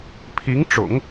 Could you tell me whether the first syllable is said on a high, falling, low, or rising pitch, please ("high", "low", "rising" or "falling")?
rising